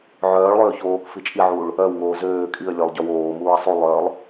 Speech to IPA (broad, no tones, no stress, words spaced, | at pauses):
ʕœːɭlˠøː çoːk fit͡ʃʼiʕuːɭ | œwŋoː zøː kʼiə̯lʲɵlˠ ɟœwoːmuːə̯ sˤulˠœːlˠ